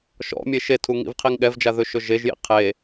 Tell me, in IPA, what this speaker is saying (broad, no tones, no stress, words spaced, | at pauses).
ʃɔ̰mʲe ʃetʰuŋḭvqʰiŋ ɠɛvd͡ʒaðɵʃɵ ʒeʒjḭ qʰe